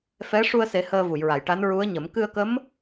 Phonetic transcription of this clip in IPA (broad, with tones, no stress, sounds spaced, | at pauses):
f ɛ˧˥ ʂ u˧ ə̯ s e˨˩˦ h əː˧ v u˨˩˨ j ɹ a˨˩˨ j ʈ a˧˥ n ɹ u˧˥ ə̯ ɲ ə˨˩˦ m k ɨ˧ ə̯ k ə˧˥ m